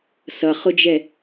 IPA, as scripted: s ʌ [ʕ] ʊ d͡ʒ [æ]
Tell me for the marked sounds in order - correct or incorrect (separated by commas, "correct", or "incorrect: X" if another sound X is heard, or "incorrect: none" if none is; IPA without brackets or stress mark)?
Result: incorrect: χ, incorrect: ɛ